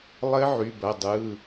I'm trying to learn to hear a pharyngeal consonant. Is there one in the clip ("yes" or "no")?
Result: yes